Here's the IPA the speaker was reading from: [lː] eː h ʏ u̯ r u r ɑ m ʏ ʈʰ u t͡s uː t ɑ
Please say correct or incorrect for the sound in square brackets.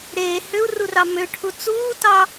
incorrect: ɾ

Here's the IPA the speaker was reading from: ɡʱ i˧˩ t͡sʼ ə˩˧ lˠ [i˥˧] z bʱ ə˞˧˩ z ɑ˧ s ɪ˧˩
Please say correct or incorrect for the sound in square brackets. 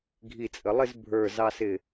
incorrect: ɪ˥˧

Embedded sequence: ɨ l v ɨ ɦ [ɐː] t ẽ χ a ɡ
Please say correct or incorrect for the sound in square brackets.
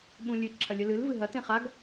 incorrect: ɐ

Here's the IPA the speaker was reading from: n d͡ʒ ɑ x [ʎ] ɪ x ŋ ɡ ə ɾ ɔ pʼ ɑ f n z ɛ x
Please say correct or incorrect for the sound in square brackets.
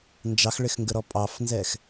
incorrect: ɭ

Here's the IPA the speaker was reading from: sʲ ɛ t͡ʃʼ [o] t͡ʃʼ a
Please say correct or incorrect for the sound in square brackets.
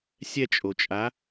correct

